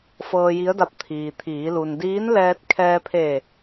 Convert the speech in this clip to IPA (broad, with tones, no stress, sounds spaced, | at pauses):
f ɤː˧ j i˧˥ ə̯ d a˧ p̚ t̪ʰ iː˩ t̪ʰ iː˩˧ l u˩ n d iː˧˥ n l ɛː˧ t̚ kʰ ɛː˧ pʰ e˧˩